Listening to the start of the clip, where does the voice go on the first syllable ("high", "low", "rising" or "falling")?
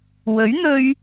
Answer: rising